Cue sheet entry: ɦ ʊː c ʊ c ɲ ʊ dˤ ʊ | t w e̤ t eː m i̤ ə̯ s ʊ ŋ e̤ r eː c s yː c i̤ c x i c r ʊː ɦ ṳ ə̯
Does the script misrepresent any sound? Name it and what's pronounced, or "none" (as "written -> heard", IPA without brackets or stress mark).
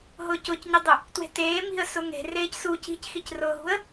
yː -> uː